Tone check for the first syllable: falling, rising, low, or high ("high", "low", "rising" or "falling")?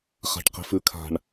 low